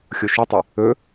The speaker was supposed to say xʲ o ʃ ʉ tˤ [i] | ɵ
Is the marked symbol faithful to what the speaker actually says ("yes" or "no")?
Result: yes